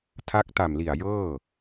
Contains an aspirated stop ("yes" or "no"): yes